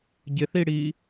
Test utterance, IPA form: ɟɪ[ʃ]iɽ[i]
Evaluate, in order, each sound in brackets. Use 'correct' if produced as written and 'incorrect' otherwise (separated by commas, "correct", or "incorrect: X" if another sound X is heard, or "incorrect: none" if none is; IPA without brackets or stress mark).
incorrect: θ, incorrect: iː